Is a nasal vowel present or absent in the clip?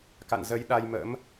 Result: absent